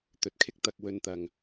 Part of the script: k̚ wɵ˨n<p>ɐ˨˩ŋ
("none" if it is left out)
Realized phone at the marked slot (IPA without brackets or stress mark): t̪